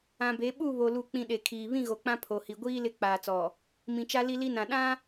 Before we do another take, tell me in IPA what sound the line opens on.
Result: ã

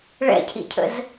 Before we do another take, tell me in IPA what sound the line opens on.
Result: ɭ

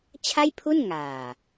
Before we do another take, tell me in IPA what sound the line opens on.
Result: t͡ɕʰ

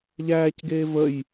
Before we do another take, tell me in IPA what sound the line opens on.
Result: ʎ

